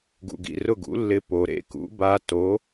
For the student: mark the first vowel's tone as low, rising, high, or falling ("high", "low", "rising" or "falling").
low